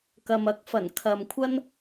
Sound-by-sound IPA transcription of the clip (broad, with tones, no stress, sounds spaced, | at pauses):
k ɐ˨ m ɐ˨˥ k̚ f ɐ˨˩ n kʰ ɐ˨ m kʷʰ ɐ˥ n